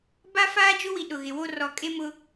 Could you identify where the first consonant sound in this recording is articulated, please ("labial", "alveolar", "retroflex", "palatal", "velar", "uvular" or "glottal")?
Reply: labial